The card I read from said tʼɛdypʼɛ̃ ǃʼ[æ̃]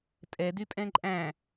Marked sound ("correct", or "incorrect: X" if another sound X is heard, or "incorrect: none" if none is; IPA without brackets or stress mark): correct